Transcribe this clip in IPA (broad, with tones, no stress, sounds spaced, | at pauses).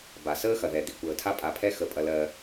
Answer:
b a˩ s əː˧ x ɐ˩ ð ɛ˩ d̪ i˩ kʷ əː˩ tʰ a˧ pʼ a˩ pʰ ɛ˧ x ə˩ pʼ ɐ˩ l ɜ˩